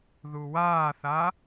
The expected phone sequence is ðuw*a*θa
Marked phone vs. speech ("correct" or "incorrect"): incorrect